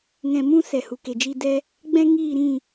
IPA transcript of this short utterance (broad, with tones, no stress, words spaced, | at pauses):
ŋɛ̃˧mũ˦ sɛ˨hu˨ke˨d͡ʒi˧ dɛ˦ | ɡ͡bɛ̃˦ŋiː˦˨ɾĩ˦˨